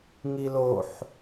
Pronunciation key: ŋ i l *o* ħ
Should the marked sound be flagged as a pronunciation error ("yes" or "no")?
no